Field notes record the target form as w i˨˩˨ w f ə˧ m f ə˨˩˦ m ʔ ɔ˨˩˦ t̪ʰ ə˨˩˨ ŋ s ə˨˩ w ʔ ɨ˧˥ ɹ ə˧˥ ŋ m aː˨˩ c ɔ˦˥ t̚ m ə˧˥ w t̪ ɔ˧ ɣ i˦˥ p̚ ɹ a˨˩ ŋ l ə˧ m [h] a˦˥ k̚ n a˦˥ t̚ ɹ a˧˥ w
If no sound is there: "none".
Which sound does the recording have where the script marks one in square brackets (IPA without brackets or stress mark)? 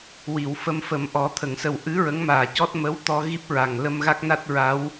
ɣ